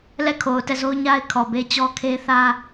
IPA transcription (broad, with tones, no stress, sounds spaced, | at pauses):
l ɛ˦˨ kʰ o˨ ʊ̯ t ɛ˦˨ z o˦ ʊ̯ ɲ a˦ ɪ̯ kʰ ɔ˨ b e˦ t͡ɕ ɔ˦ kʰ e˦ θ ä˦